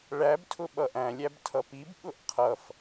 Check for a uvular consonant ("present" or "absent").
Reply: present